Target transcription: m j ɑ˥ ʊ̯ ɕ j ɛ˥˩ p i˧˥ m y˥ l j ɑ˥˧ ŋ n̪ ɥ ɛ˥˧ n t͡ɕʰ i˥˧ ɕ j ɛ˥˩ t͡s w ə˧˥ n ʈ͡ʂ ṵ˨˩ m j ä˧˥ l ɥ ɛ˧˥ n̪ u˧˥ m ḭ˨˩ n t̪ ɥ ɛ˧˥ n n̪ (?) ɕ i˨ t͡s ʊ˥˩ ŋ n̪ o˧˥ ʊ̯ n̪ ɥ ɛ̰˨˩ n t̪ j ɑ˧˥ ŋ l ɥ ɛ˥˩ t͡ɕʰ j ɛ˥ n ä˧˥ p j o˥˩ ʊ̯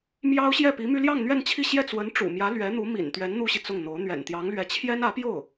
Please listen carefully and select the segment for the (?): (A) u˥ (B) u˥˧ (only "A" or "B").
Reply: A